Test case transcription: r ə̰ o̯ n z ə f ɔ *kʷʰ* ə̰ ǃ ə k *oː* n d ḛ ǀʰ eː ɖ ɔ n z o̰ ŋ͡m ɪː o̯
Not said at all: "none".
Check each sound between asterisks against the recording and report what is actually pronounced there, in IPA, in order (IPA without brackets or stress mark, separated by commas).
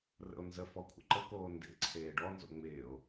kʷʰ, oː